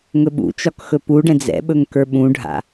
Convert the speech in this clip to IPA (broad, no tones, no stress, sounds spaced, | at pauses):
ŋ ɵ ɓ ṵ t͡ʃ ɒ k x ɵ p u ɖ ɛ̃ d͡z ɛ̰ ɓ ɵ ŋ k ə˞ ɓ ũ ɖʱ a̰